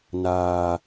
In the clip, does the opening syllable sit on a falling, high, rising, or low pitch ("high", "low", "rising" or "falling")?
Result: high